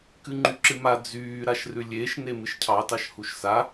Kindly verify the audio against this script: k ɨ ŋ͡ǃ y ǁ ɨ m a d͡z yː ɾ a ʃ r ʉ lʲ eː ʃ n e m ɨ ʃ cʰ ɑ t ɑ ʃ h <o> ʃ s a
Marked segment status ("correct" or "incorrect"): incorrect